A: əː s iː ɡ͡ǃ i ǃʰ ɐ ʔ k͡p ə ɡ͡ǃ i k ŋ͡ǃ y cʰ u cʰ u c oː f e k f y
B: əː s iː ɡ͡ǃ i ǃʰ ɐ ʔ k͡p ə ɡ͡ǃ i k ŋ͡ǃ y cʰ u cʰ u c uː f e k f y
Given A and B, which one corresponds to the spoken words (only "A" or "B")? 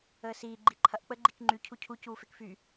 B